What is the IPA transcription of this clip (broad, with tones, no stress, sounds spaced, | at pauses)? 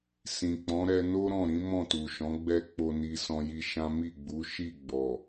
s ĩ˨ k͡p ɔ̃˨˦ ɾ ɛ˧ n o˦ ɾ ɔ̃˦˨ ɾ ĩ˨˦ m ɔ̃˦˨ t u˨ ʃ ɔ̃˨˦ ɡ͡b ɛ˦ k͡p o˧ n i˧ s ɔ̃˧ j i˧ ʃ ã˦ m i˦˨ ɡ͡b u˨˦ ʃ i˦˨ ɡ͡b ɔ˨